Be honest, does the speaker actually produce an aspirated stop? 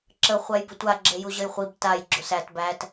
no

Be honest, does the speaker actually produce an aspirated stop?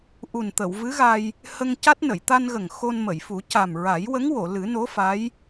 no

